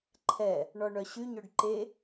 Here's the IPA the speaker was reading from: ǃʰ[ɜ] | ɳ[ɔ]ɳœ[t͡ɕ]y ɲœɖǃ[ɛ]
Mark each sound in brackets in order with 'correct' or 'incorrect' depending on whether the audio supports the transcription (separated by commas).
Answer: incorrect, correct, incorrect, incorrect